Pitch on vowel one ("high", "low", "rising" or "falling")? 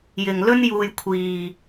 low